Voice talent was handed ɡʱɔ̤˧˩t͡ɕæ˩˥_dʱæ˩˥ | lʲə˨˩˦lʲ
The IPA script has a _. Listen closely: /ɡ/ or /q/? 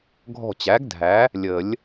ɡ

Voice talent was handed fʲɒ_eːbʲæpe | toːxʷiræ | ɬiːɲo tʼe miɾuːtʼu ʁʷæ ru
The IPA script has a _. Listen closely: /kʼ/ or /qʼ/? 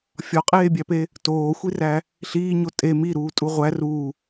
qʼ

